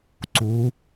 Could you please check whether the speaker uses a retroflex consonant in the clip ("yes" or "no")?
no